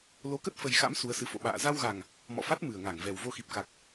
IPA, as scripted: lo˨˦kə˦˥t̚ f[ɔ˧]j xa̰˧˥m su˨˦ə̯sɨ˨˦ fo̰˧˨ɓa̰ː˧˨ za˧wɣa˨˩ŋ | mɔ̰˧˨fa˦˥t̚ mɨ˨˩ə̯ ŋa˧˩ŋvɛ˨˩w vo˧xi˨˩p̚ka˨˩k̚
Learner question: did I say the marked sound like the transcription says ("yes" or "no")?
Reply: no